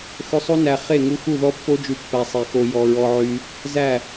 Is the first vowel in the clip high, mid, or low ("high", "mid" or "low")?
mid